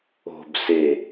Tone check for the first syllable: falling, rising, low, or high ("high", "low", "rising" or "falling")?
low